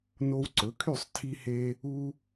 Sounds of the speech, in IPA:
n o˧ w ǀ ɵ˩˥ kʰ y˥˩ sˤ tʰ i˧ h e˧ | u˧

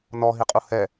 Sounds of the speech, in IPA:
n ɔ ɦ i qʼ u h ɛ

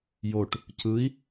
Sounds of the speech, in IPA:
j o ʈ | c ɯ i̯

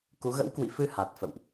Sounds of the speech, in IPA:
k u˨˦ ɣ ə̰˧˥ w k w ḭ˧˨ f ɨ˧ h a˨˩ t̚ f ə̰˧˨ w ʔ

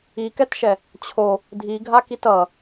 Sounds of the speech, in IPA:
i k ɛ t ʃ ɛ | t͡ɕʰ o | dʱ i ɡʱ a k i t ʌ

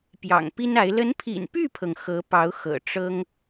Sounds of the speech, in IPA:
p j ɑ̰˨˩ ŋ p i˥ n a˧˥ ɪ̯ l ə˧˥ n pʰ ḭ˨˩ n p y˥˩ pʰ ɤ˩ ŋ x ɤ˧˥ p ɑ˧˥ ʊ̯ x ɤ̰˨˩ ʈ͡ʂ ɤ˥ ŋ

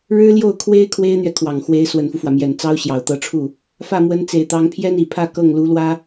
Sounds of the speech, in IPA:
ɻ ɻ̩˥ l j o˥˩ ʊ̯ kʰ w e˥ ɪ̯ kʰ w e˥ ɪ̯ n̪ ɥ ɛ˨ kʰ w ɑ˨˩ ŋ x w e˧˥ ɪ̯ s w ə˨˩ n f u˦ f w ä˩ m j ɛ˨˩ n t͡s ɑ˥ ʊ̯ ɕ j ɑ˨˩ ʊ̯ t̪ ɤ˧˥ ʈ͡ʂʰ u˥˩ | f ä˥˩ m w ə˧˥ n t͡s e˨˩ ɪ̯ t̪ ɑ˧˥ ŋ pʰ j ɛ˥ n i˨˩ pʰ ä˥˧ k ɤ˥˩ ŋ l u˧˥ l w ä˥

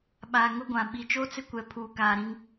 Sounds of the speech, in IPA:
ɓ aː˨ ŋ ʊ˦ ɡʷ ã˨ ɓ i˨ t͡ʃ oː˦ t͡s ɪ˦ kʷ ɛ˨ pʰ uː˨ k aː˨ ɾ ĩ˦ ŋ

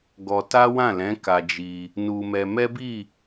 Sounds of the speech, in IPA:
ɡ ɔ˧ t a˦ w ã˦˨ l ɛ̃˨˦ k a˧ d͡ʒ i˧ | n u˧ m ɛ˧ m ɛ˦ b i˦˨

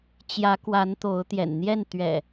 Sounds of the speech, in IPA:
t͡ɕ j ä˨˦ k w a˨˦ n t̪ o˨˦ ʊ̯ t̪ j ɛ̰˨˩ n n̪ j ɛ˥˨ n t̪ ɥ ɛ̰˨˩

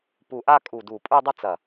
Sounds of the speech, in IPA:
p u˧˩ ʔ a˥˧ kʼ u˧˩ d u˧˩ pʼ u˥˧ dˤ ə˥˧ t͡s ɐ˧˩

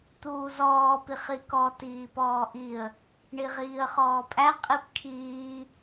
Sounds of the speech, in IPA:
t̪ uː z ɔː p i χ i k ɔ t iː p ɔː ʔ i ə̯ | ɳ i ʁ iː ə̯ χ ɔː pʼ æ qʼ i p kʰ iː

